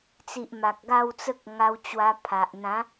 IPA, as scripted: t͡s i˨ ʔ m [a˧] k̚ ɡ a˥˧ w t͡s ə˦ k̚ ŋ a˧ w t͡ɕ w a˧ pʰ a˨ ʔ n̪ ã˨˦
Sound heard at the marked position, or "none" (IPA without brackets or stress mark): a˨